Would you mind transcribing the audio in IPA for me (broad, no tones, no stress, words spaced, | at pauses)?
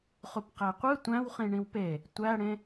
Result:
χupqæqʷɯ tʷæ̃wχĩ ɳĩwpe | tʷæɽẽ